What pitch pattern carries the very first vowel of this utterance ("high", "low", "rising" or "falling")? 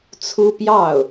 high